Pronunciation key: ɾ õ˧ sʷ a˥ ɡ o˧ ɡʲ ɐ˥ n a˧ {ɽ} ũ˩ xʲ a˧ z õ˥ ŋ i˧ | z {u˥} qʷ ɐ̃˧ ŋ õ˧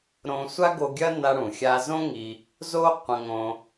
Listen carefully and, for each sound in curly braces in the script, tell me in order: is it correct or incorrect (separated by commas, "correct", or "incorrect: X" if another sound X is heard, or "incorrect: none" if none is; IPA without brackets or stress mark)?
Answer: correct, incorrect: o˥